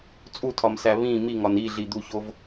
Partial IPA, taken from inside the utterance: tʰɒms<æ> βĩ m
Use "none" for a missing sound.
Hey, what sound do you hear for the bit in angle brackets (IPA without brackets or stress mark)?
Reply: æ